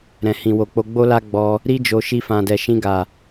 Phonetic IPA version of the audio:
ɾɛ̃˨hĩ˨wo˨k͡po˧ ɡ͡bo˦la˦ ɡ͡bɔ˧ | ɾi˦d͡ʒo˧ ʃi˧fã˨dɛ˨ ʃĩ˧ɡa˨

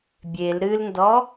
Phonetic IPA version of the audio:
bʲel ɾɨlndɔ

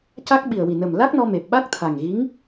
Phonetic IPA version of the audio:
ca˦˥k̚ ɓi˨˩ə̯wi˨˩nə˨˩m la˦˥k̚nɔ˧me˨˩p̚ ɓa˦˥k̚ t̪ʰa˨˩ŋɣi˧˥ŋ

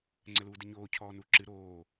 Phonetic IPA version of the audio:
ŋ͡ǀɘluːdɘɲoː cʰɔːnuːǁɨ ɾoː

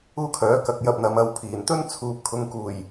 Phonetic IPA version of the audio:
uː˥kʰœː˨˥kɐ˨˥k̚jɐ˧p̚ n̪ɐ˨˧m ɐ˧wpʰiː˨˩n t̪ɵ˥nt͡sʰuː˨p̚ kʰʊ˨ŋkuː˨˩j

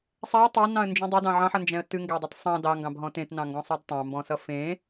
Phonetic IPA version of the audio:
sˤæə̯ tˤænɑ̃ə̯nd͡ʒũ dˤedɑ̃ ʕɑ̃ħʌnd͡ʒɛ̃ə̯ tɨŋɡædˤɨt sˤɑ̃ dɑŋɡɑ̃bɦɔ̃ tẽtnɑ̃ŋɡɔ̃sˤʌd tˤɑ̃mbɔ̃sʌ fẽ

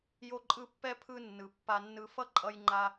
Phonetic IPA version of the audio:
jo˦ǃʼɯ˦ pːɛ˥pʰɯ˦nːɯ˩ pːa˨nːɯ˨fʌ˦ ǃʼʌ˦jŋ͡ǃa˦

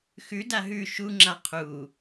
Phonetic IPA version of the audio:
xʉ daɦʉ ʃuŋ͡ǁa qʰu

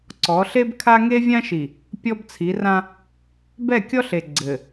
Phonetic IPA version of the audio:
ǀɔ˨˦ɬe˦bkʰa˦ ŋe˦vʲã˦ʃi˨ | pʲɔ˦bt͡sʰi˨˦rã˦ | bɛ˦˨kʲɔ˦ɬe˨ ɡ͡ǀɘ˨

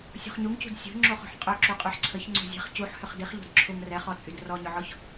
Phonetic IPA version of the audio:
sʲo̤χɲuŋcṳd sʲo̤ ŋ͡ǁoχṳħqʼœǁu qʼyħǀʰəç ŋ͡ǀo̤zʲɛ̤χ cuħ hʏχdiχʎo̤d ǁʰʊŋ rɛχɔt͡sʼyd rɔɲʏʕɔç

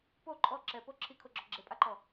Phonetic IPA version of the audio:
po ǃʼɔ ǁɛpo ǁʰikʰoɡ͡ǁɔ ɡ͡ǁepʼaǃɔ

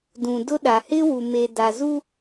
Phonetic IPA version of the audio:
dũ˨dʊ˦ɗa˨ hɪ˦wu˨me˨ da˨zu˦

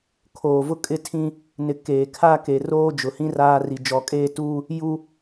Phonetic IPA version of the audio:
kʰoː˨vʊ˦ kʼɪ˦tʰĩ˦ | nɪ˨ keː˨kʰa˦ke˨ roː˦d͡ʒʊ˨hĩ˦ raː˦ri˨ d͡ʒɔ˨kʼeː˦˨tuː˦ | ju˦

